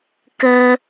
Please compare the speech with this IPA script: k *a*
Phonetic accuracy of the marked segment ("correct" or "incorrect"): incorrect